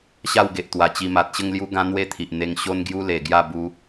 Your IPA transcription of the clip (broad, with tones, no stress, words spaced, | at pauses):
ɕa˥˧wɡe˨ʔt̪wa˨˩t͡ɕi˧ ma˨t̚ɕə˥˧ŋ lju˦ɡã˦ n̪we˥˧t̪ʰi˨ʔ n̪e˧ŋ ɕo˦nɡju˦le˨˩ɡja˥˧ bu˧